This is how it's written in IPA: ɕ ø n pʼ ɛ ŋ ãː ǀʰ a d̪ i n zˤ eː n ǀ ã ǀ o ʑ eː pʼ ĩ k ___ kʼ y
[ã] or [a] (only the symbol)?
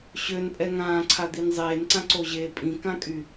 ã